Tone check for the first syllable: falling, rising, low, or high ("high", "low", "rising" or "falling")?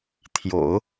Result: low